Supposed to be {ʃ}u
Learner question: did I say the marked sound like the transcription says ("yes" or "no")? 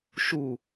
yes